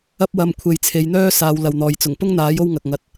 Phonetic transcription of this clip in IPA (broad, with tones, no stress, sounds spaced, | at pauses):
ɐ˥ p̚ w ɐ˧ m kʷʰ e˨ j t͡sʰ e˨˧ j n̪ œː˥ s aː˨˧ w l ɐ˨ w n̪ ɔː˨ j t͡s ʊ˨˩ ŋ p ʊ˥ ŋ n̪ aː˨˥ j o˥ w ŋ ɐ˨ k̚ ŋ ɐ˨˥ t̚